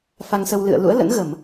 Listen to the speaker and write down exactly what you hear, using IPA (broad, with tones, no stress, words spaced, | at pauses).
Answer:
fa˧ŋsə˧w lɨ̰˧˨ə̯lṵ˧˥ə̯lə̰˧˥n ɣə˧˩˨m